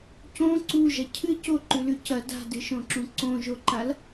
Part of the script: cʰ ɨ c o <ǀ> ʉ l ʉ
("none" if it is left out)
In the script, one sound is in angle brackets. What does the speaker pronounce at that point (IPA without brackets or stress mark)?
ǃ